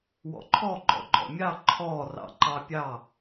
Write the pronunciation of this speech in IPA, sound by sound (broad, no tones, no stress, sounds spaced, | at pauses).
w ɔ̰ ǃʰ ɔ ɡ͡ǃ ɔ̰ ɡ͡ǃ ɔ̰ mʲ ɑ ǃʰ ɔ r ɑ̰ ǃ ɑ pʲ ɑ